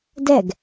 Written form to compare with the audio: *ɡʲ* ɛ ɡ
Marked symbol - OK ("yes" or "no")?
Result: no